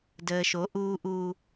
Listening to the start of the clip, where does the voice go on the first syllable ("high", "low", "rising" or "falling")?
low